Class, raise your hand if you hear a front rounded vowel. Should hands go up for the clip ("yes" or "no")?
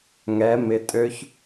yes